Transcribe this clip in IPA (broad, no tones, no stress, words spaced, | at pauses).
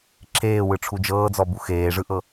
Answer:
ǁʰeːwɯʈ͡ʂʰu d͡ʒɤːd͡zɔbu xeːʐɯʔɤ